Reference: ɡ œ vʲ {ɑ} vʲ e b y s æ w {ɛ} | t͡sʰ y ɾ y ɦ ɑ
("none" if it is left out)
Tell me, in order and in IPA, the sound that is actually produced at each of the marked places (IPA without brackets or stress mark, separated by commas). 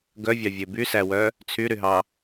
ɑ, œ